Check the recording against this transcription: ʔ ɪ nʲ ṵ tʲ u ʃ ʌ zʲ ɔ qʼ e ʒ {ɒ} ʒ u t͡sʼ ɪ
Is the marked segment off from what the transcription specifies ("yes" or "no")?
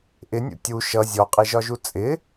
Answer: no